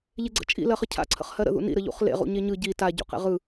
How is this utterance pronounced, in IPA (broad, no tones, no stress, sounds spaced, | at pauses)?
ʎ e ɡ͡ǀ ə̰ t͡ʃʼ ḭ l ɜ χ ə cʰ a̰ ǀʰ ə̰ χ h ɜ ɾ ə̰ ð ṵ n ḭ ɾ ə ʎ ṵ χ l ḛ ʁ ṵ ɲ e ɲ ɯ ɟ i t a ɟ ṵ q ḛ ʁ ɯ